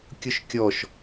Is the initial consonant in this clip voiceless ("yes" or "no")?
yes